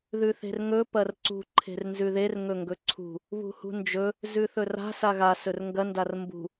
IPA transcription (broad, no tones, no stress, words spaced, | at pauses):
ðʉθe̤rŋɵ pɐrǀṳ ǃʰe̤rnzʉðer ŋɵŋɡɵǀʰṳ | βṳhṳnd͡ʒɵ | zʉθɵra̤ saɣa sɵrŋɡɐ ndarmbṳ